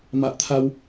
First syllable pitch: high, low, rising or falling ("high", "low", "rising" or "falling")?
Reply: high